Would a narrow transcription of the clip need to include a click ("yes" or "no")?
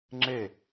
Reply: yes